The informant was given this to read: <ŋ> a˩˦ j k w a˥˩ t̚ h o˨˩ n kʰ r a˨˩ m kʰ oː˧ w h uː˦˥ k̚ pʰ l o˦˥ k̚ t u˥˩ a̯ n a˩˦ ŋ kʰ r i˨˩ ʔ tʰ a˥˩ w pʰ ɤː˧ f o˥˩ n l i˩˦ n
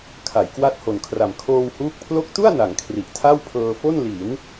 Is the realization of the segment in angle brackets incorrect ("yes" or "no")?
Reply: yes